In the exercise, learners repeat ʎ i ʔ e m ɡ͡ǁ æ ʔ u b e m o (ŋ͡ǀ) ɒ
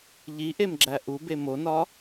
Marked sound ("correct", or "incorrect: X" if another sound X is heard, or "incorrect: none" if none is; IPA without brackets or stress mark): incorrect: n